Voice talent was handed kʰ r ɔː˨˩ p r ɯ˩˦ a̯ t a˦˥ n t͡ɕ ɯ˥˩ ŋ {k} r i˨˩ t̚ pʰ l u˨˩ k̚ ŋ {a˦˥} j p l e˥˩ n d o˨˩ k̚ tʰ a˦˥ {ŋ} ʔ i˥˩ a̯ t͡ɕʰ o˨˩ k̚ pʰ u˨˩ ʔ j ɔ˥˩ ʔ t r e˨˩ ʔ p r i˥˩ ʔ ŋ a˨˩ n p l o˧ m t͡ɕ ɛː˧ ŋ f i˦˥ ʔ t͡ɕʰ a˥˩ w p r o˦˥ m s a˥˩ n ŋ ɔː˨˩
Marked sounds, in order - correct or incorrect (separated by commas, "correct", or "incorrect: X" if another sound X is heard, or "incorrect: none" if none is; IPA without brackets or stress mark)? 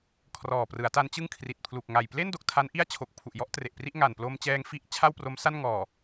incorrect: kʰ, incorrect: a˨˩, incorrect: n